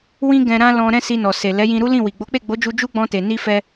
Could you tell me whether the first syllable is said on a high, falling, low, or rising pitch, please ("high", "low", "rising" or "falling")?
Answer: high